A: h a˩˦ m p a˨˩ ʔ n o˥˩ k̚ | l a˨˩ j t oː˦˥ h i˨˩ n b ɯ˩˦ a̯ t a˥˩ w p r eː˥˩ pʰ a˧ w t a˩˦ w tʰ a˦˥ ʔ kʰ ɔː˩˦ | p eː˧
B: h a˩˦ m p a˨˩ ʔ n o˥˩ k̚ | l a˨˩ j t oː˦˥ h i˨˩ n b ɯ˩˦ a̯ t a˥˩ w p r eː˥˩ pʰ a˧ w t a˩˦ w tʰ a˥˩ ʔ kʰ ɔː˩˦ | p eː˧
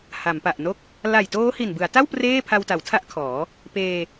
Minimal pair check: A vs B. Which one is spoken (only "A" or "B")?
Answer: A